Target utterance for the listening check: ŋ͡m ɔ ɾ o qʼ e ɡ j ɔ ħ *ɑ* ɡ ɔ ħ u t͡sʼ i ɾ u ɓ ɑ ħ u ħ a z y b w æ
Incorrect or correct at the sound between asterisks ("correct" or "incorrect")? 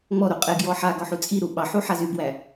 incorrect